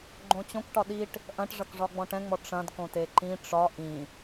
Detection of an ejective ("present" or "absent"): absent